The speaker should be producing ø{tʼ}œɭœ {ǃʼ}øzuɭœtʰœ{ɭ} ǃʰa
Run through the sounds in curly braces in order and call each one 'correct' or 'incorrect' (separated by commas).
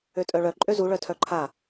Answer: correct, correct, incorrect